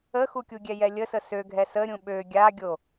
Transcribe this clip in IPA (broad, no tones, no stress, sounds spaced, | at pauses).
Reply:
ə x u kʲ u ɡʲ ɛ j ɛ lʲ ə s ə s ø ɡʱ ɛ s ə ɾʲ ũ ɓ ø ɡʲ a ɡʲ o